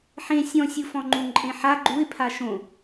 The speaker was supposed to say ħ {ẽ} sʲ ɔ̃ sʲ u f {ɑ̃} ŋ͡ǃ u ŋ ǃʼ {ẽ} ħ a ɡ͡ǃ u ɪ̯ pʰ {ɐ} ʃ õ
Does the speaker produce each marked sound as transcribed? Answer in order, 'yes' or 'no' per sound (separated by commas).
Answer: yes, no, yes, no